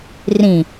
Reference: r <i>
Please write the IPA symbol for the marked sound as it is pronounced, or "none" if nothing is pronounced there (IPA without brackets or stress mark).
ĩ